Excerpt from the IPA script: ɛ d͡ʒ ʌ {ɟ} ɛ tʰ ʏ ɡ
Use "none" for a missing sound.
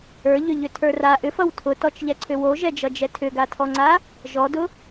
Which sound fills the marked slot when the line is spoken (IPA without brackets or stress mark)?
d͡ʒ